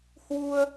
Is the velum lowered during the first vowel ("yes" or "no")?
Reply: no